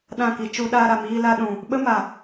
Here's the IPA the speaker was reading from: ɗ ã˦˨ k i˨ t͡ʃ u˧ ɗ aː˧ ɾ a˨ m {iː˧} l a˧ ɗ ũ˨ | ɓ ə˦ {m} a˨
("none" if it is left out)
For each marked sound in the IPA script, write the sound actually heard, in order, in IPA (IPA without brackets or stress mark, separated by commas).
iː˧, m